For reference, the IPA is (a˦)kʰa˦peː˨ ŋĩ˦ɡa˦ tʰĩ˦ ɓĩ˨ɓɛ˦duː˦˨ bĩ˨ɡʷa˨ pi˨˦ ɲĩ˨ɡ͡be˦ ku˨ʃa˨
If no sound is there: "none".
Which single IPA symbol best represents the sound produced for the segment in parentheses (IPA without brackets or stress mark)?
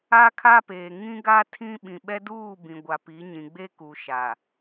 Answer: a˦